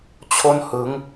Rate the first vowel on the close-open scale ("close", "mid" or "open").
mid